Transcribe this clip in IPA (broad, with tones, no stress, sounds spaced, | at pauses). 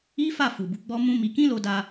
i˦ f a˦˨ f u˨ b u˨˦ ɡ͡b ɔ˦ m ũ˦ m i˧ k ĩ˦ l o˧ d a˧